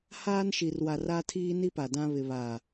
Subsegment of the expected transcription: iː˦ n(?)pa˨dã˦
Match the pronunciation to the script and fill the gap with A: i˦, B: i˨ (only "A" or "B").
A